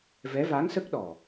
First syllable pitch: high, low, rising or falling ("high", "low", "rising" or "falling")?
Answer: rising